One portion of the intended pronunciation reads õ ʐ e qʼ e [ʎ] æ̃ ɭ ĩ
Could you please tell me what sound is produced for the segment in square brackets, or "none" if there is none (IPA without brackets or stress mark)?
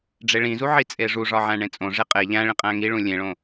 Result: ʎ